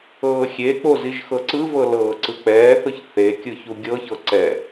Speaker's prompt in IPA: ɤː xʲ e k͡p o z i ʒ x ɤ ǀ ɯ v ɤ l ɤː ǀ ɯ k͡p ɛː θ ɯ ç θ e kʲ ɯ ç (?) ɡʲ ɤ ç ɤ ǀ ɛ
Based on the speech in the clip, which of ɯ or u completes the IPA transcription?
u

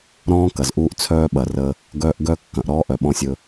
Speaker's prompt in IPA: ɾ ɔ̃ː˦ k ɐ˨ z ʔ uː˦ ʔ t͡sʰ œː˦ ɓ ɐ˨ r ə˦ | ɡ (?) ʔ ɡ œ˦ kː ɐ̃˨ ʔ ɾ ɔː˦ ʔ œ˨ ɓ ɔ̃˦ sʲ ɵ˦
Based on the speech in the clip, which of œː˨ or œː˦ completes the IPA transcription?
œː˦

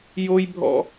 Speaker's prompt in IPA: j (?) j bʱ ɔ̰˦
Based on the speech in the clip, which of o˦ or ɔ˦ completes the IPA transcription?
o˦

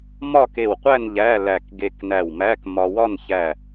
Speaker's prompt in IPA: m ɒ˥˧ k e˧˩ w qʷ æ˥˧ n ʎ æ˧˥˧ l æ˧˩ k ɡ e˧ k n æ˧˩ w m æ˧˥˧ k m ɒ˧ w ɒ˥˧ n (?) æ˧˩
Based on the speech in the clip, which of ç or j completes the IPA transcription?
ç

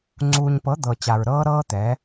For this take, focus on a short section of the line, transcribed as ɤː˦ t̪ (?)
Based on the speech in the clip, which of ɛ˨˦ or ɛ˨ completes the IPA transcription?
ɛ˨˦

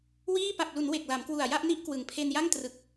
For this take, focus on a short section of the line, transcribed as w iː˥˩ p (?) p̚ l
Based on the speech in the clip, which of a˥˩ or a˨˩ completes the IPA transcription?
a˨˩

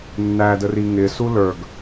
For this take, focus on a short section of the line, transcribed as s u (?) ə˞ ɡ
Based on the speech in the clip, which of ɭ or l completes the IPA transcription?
l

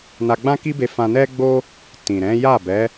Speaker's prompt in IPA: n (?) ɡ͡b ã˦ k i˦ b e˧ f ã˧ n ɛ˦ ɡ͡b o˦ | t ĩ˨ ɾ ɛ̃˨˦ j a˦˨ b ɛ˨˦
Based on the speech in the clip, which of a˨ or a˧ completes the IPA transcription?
a˧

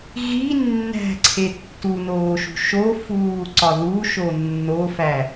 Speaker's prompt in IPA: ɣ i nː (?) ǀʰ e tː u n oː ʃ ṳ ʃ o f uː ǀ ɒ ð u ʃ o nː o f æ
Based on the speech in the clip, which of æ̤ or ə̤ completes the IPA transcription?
æ̤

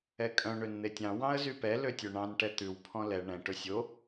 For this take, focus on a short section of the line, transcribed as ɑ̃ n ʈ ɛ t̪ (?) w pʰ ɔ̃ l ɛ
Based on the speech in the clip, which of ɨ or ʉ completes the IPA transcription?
ʉ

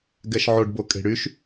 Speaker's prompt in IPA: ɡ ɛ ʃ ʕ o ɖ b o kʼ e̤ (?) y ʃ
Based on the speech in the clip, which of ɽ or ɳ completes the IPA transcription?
ɽ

